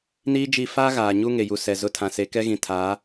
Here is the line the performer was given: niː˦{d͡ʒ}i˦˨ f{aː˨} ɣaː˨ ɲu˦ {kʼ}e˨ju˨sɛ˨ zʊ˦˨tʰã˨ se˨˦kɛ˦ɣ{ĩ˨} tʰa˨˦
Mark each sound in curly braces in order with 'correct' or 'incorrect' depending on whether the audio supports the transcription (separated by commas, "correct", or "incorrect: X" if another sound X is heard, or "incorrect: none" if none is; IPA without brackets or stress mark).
correct, incorrect: aː˦, incorrect: ŋ, correct